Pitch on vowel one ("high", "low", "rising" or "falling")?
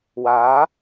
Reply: rising